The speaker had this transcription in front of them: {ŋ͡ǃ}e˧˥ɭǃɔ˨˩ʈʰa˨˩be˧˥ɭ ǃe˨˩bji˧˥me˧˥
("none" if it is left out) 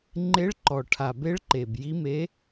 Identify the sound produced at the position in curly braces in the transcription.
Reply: ŋ͡ǃ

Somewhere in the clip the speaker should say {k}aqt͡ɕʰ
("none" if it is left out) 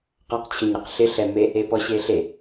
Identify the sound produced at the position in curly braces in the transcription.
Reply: q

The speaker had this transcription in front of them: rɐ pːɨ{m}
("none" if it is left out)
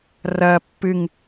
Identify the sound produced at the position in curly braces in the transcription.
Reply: ŋ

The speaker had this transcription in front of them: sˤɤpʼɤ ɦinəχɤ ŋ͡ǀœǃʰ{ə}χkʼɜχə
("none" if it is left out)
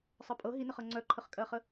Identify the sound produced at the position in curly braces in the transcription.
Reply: ə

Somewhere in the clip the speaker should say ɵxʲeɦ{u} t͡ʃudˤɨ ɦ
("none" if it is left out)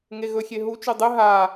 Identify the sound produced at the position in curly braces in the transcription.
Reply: u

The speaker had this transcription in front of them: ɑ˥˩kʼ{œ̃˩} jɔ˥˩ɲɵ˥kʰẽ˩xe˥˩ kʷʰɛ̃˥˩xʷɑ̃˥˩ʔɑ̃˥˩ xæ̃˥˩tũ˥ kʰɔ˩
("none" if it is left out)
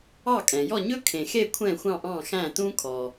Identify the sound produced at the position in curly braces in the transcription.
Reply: ɛ̃˩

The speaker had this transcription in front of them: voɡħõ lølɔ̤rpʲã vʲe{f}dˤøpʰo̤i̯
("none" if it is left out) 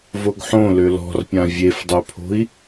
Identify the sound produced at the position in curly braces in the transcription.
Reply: f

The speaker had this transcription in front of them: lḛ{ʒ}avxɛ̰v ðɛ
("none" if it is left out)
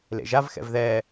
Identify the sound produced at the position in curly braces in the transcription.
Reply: ʒ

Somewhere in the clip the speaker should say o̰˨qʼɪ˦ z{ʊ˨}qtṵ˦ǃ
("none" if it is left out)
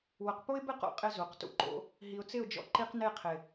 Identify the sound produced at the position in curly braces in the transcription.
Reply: u˨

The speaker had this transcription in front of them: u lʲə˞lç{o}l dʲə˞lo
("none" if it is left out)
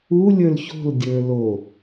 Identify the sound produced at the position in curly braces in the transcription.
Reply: o̤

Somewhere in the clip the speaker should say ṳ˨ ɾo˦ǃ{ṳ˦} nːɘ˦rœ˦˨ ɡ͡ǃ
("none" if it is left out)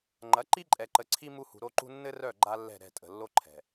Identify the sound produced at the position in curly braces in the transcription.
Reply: ṳ˦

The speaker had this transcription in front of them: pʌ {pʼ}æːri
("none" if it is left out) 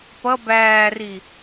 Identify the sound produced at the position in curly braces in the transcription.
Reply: b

